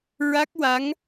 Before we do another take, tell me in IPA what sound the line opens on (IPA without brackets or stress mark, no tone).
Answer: ɹ